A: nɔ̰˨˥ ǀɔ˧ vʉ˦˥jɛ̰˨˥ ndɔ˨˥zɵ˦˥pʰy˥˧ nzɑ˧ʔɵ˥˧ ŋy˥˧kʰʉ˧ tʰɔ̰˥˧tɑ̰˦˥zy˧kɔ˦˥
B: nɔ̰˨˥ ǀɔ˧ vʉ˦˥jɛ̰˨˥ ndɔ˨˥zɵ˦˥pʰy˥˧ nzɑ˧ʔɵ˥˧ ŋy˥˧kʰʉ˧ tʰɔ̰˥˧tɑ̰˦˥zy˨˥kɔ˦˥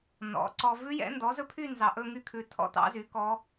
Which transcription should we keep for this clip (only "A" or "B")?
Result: B